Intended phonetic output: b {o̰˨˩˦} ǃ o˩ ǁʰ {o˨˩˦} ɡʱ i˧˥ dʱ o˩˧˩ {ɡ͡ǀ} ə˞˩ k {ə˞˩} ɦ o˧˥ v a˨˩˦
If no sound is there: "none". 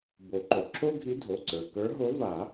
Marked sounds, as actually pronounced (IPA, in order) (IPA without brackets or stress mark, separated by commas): o˨˩˦, o˥, ǀ, ə˞˧˥